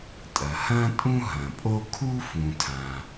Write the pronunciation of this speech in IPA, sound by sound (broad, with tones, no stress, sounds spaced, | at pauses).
tʼ ɐ˩ h ɐ̃ː˥ tʼ ũ˥ ɦ ɐ̃˩ pʼ o˥ kʰ u˥ f ũ˩ tʰ ã˩